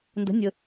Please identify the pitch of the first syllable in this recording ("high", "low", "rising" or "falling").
rising